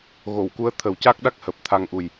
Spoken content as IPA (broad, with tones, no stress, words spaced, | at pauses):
ɣo˨˩˨w ku˧˥ə̯t̪ʰə˨˩˦wca˦˥k̚ɗa˦˥k̚ həː˨˩p̚t̪ʰa˧ŋʔu˨˩j